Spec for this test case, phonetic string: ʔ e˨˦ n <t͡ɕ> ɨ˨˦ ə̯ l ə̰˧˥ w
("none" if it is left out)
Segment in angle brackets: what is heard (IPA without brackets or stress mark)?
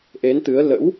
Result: t̪